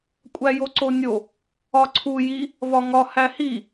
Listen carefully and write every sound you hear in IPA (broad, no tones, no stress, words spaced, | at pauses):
kʷʼæjoǀonʲo | ɒǀʰu ji | vɒŋɒ hæhi